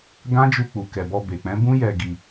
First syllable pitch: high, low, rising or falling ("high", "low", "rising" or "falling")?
high